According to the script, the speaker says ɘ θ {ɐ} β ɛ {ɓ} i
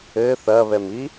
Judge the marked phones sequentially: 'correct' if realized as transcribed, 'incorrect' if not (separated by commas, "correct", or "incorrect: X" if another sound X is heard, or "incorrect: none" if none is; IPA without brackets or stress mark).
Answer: correct, incorrect: m